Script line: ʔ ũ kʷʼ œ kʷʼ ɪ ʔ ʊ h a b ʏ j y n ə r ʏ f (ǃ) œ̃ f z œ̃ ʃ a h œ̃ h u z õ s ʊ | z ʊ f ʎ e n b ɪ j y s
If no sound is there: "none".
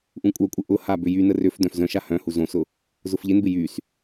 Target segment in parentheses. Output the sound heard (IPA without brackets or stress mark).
d